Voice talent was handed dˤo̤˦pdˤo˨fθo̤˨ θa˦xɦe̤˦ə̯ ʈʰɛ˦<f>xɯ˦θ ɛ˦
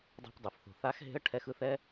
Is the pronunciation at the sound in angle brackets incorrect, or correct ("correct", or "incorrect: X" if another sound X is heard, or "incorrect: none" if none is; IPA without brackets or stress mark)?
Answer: incorrect: none